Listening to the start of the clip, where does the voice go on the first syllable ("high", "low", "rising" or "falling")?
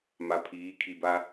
low